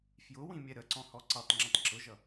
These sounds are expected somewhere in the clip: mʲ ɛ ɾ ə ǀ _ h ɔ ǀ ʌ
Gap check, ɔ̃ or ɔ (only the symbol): ɔ̃